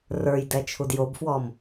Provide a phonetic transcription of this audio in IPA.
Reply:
rə˞jdɛ t͡ʃʰudjobfwɔm

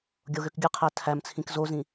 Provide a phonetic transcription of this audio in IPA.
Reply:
ɡʲoɣøkɡʲɯqʰæ tʰæmt͡sʰĩk zozĩ

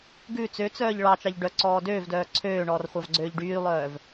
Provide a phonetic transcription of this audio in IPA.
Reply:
ɡʉ t͡søt͡sœːʎ ɭɑt͡ʃɑʎ ɖœǀɔː døːvdœː ǀʰøːɳɔːrχʷɑvɡ͡ǀøːʎ ɖyːlˠœːv

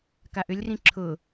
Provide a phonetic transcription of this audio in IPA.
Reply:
kaʔʏlʲrĩ ǁʰʊ

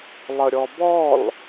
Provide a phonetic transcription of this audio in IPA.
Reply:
lˠəɾʲɔbɔl

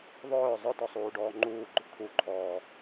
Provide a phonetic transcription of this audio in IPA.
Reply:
ðˤœː zˤœtɔsˤuː ɖɔːŋ͡ǃuːɡ͡ǃʊ t̪ʰuǃʰɔː

